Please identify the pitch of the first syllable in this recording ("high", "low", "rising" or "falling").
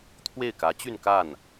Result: falling